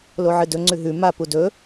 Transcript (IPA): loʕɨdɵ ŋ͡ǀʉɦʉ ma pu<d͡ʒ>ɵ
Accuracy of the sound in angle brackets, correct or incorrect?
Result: incorrect